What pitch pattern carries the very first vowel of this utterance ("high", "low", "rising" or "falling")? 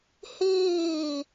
falling